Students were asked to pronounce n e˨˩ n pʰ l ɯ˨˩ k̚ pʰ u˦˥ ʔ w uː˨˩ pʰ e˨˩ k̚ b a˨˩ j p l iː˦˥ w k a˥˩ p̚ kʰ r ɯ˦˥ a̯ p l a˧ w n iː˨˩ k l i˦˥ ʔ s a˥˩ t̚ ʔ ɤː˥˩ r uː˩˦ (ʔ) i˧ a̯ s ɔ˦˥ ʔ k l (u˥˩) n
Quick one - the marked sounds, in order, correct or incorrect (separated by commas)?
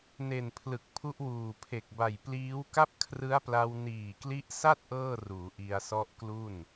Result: correct, correct